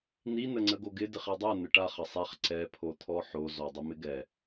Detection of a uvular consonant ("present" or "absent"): present